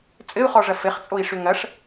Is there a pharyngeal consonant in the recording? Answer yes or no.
no